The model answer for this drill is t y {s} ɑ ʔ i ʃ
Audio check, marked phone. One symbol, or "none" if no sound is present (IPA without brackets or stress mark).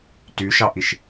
ʃ